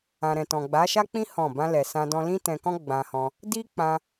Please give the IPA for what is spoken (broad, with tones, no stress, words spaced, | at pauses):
ã˨ɾɛ̃˨tɔ̃˨ ɡ͡ba˨˦ʃa˦k͡pĩ˦ hɔ̃˦˨ bã˧lɛ˨ sã˧dɔ̃˧ lĩ˦tɛ̃˧kɔ̃˦ ɡ͡bã˧hɔ̃˧ | di˦k͡pã˧